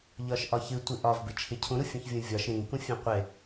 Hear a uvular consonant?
yes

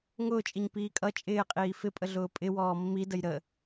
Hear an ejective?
yes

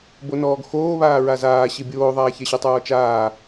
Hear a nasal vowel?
no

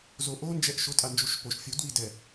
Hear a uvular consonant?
no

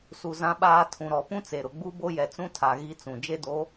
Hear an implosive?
yes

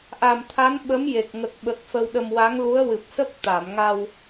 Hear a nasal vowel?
no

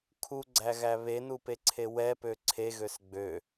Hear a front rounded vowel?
yes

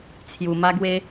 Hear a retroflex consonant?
no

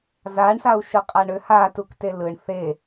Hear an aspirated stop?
no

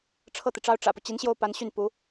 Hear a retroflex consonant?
yes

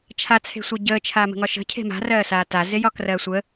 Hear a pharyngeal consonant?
no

